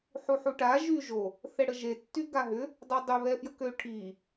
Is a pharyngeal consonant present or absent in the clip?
present